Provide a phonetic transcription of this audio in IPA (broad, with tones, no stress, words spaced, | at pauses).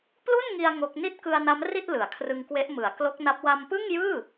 plu˥˩nŋi˧a̯ ŋo˦˥k̚ ni˥˩t̚kɯ˧a̯na˦˥m ri˥˩t̚ lɯ˩˦a̯ kʰrɯ˧ŋkwe˦˥ʔ mɯ˩˦a̯ klo˦˥k̚na˦˥p̚ wa˧mpɯ˥˩ŋjɯː˥˩